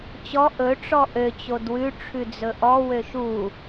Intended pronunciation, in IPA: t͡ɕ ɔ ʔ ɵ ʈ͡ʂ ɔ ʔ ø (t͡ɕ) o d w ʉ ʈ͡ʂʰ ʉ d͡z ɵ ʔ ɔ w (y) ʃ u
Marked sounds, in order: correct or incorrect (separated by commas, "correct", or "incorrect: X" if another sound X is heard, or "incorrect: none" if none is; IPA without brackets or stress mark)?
correct, incorrect: ø